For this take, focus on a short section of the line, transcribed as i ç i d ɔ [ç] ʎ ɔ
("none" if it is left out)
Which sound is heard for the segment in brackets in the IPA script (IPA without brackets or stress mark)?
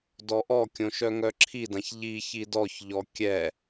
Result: ç